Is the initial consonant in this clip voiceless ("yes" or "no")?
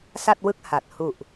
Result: yes